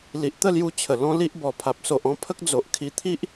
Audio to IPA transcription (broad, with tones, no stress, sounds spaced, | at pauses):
l i˨ ʔ t̪ ə˥˧ l j u˧ t͡ɕʰ ə˨˩ l ɔ̃˦ l i˦ ʔ b ɔ˨˩ pʰ a˨ p̚ s o˨ ʔ ɔ̃˦ pʰ ə˦ k̚ d͡z o˨ ʔ kʰ i˧ t̪ʰ i˦ ʔ